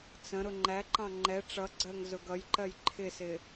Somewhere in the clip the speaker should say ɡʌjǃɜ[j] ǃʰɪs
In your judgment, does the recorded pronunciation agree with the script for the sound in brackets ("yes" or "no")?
yes